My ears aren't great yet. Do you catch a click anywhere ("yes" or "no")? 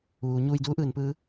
no